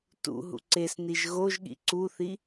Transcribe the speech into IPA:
t ṵ ɦ ṵ ǀ e s n i ʒ ɣ o ʒ ɠ ḭ ǀ u θ i

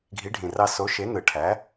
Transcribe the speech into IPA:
ɡʱ i˨˥ ɖʱ ĩ˨˩ r ɑ˦˨ s o˨˥ ʃ e˨˥ n ɯ˨˩ ʈʰ æ˨˥

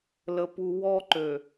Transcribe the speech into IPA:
l ə˨ p u˨ w ɔ˦ ǃ ø˨

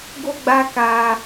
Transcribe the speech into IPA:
ɡ o˧ ɡ͡b a˧ k a˧

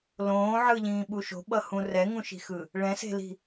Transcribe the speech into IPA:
l õː ʕ ɯ ʎ ĩː ɓ u ʃ o̤ ɓ ʌ h ũ r ɛ ŋ ũ ʃ i̤ x ɯ | ɭ ɛ̃ s e̤ l i̤

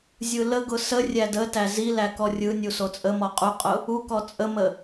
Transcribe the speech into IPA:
zʲ ɯ l ə ɡ ʊ s ə rʲ æ d ə t æ z i l æ k ɔ rʲ ɯ nʲ u s o t͡sʼ ə m ɔ qʼ u qʼ ʊ | u k ɔ t͡sʼ ə m ə

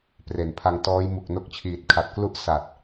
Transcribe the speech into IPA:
p r e˨˩ n pʰ a˧ ŋ t ɔː˦˥ j m u˨˩ k̚ n o˦˥ k̚ t͡ɕʰ iː˨˩ t̚ kʰ a˨˩ t̚ k l u˦˥ ʔ s a˨˩ t̚

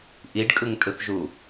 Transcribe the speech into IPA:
ʔ i ɖ kʼ ɯ ŋ tʼ ɯ θ ʒ u

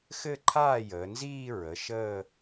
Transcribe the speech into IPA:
x ɘ˥˩ ǃʰ aː˥˩ j əː˩˧ n z iː˥˧ ɹ ə˩˧˩ ʃ əː˥˧

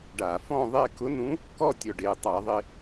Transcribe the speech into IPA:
ɖ a˧˩˧ f ɔ̃˥˧ ðˤ e˥˧ k ʊ˧˥ n ũ˧˥ | k ɔ˥˧ tʲ ɔ˧˩ ɖ e˧˩ tˤ a˧˩˧ ðˤ ɪ˧

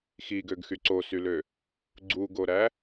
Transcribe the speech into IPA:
x i ɡ ø ɡ x y ǀ o s y l ø | ɡ͡ǀ u ɡ o ɾ æ

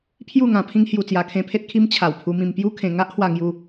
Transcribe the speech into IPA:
pʰ j u˥˧ ŋ ã˧ pʰ ĩ˦ ŋ h j u˧ t͡s j a˧ kʰ ẽ˧ pʰ e˦ t̚ kʰ i˧ m t͡ɕʰ a˨˩ w pʰ u˧ m ĩ˧ m p j u˦ kʰ ẽ˧ ŋ a˦ ʔ h w a˧ ŋ j u˧

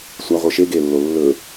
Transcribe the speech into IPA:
sʷ a ʁʷ ɨ ʃ e ɡ e lː o lː ɵ

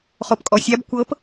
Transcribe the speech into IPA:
χ o p kʼ ɔ sʲ a b kʷ ɤ p

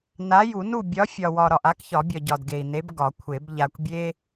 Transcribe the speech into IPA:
n a˨˥ j u˨˩˦ n u˥˨ bʲ ɒ˨˥ fʲ ɒ˨ w ɒ˨ ɾ ɒ˨ ʔ a˨˥ k ç ɒ˨˩˦ bʲ ɒ˨ ɟ ɒ˨ d ɡ e˨ i̯ n e˨˥ b ɡ ɒ˨˩˦ kʷʰ e˨˩˦ b ʎ a˨ kʷ bʲ e˦

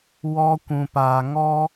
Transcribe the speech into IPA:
w ɔ˧ kʷ ũ˨ p aː˨ ŋ ɔ˦

